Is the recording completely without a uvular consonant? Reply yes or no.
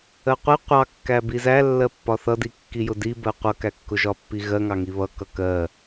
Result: no